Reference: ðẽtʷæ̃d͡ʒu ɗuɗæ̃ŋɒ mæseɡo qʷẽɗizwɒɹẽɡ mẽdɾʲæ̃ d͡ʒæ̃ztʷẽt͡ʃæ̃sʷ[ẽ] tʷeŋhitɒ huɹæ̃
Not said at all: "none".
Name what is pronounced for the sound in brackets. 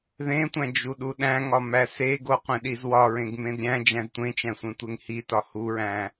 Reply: ẽ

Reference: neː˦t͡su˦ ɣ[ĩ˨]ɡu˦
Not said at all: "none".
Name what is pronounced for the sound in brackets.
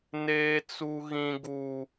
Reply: ĩ˦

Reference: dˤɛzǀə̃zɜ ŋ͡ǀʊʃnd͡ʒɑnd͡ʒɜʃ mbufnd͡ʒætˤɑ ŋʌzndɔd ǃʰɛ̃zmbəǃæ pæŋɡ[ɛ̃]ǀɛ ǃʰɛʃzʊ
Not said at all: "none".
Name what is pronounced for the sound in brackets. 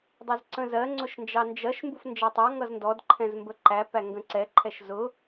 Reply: ə̃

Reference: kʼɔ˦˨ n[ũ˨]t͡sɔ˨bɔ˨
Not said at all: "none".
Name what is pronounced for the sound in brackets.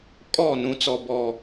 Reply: ũ˨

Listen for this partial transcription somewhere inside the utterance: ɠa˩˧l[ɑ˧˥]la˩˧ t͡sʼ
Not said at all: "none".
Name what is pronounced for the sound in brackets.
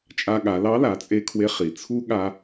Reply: ɑ˧˥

